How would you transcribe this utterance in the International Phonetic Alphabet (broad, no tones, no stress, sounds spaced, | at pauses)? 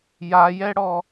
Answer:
j a j ɛ ɽ ɔ